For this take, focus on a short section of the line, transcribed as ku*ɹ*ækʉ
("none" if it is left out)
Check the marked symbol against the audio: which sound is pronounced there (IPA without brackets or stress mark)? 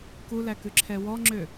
l